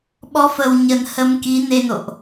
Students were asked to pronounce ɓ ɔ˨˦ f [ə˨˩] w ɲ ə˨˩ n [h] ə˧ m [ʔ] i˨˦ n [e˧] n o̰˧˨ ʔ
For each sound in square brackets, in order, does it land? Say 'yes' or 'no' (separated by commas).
yes, yes, no, yes